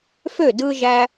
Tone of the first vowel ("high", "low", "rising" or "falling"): falling